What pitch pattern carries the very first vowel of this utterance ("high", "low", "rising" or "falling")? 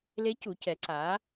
rising